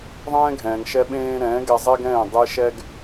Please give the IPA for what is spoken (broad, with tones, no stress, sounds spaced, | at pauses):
ðˤ ɛ̃ː˦ ɡʱ ɛ̃ː˨ ŋ ʃ ɛ˧ ɓ ẽː˧ ɾ ɛ̃ː˨˦ ɡ ɛ˧ zˤ e˦ ɡ ɛ̃ː˦˨ dˤ e˧ ʃ ɛ˧ ɡ